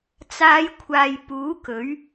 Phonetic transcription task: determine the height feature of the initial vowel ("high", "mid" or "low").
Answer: low